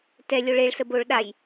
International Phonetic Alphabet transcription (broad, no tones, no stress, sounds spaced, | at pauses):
t ɛ lʲ o ɭ e ɭ s ə b o ɭ ɗ a j